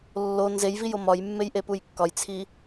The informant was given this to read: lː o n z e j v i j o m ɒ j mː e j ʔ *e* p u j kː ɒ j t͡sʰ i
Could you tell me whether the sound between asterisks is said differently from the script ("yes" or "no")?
no